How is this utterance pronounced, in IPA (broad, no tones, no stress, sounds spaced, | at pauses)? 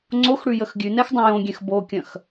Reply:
ŋ͡ǀ o x ɽ ʉ j ə x ɡʲ ʉ n ɛ x dˤ ɐ̃ j õ ɡʲ ɛ̃ x b o kʲ ɐ̃ x